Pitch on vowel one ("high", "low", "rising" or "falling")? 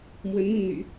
rising